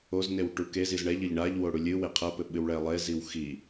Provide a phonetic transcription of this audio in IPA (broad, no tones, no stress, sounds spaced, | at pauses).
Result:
o z n e w ʈ u k e z i z ɳ ɛ ʎ ɘ ʎ ɳ a ʎ w o ɽ u lʲ ɨ w e qʰ ɐ p ɘ ɓ ɨ w ɭ ɛ lˠ e z i w x i